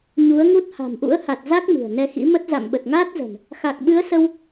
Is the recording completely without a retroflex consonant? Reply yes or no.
yes